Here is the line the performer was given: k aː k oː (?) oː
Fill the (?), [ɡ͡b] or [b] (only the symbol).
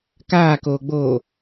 ɡ͡b